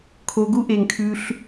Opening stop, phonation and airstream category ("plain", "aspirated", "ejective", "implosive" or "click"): aspirated